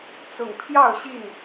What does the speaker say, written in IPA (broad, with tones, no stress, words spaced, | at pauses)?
t͡sʊ˨˩ŋpʰjɑ˥˨ʊ̯ ɕi˥˨n